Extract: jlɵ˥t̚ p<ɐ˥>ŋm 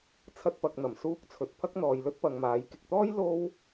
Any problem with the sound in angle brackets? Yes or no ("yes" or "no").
yes